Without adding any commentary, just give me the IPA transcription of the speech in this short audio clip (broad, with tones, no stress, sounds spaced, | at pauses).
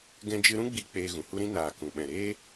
ɡ ɛ̃˧ d͡ʒ ɨ˧ ɾ ũ˦ ɡ͡b i˧ k͡p eː˧ ɣ ũ˨ h u˦ ɾ ĩ˦ n aː˨ k ũ˨ ɓ ɛ̃˨ ɾ eː˦